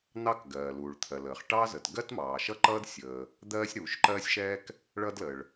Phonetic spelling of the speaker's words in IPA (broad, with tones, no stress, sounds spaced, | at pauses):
n̪ ɑ˥ k ɡ ɜː˩ l uː˩ ɭ t̪ʰ ɜ˩ l əː˩ χ ʈ ɑ˥ z ə˩ t ɡ ɜ˥ t m ɑː˩ ʃ ʌ˥ ǃ ʌː˥ d sʲ əː˩ | d̪ ɜː˥ sʲ ɾ uː˩ ʃ ǃ ɜː˥ sʲ ʃ ɛː˥ k | ɭ ʌ˥ d l əː˩ ɭ